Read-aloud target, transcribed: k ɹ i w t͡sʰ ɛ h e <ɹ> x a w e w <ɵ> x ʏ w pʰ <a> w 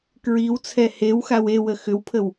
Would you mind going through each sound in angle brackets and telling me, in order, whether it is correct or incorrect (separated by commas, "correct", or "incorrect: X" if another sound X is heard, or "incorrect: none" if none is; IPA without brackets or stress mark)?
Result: incorrect: w, incorrect: ə, incorrect: ə